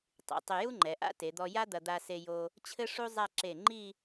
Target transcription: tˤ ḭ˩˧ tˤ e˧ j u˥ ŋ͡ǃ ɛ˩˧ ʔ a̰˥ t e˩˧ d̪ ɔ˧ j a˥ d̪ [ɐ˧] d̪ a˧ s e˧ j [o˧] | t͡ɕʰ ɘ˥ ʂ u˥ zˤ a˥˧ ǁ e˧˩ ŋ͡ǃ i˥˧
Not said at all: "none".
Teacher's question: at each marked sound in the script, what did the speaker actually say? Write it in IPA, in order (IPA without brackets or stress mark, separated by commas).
ɐ˧, o˧